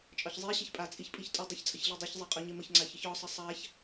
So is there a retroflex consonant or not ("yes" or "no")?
no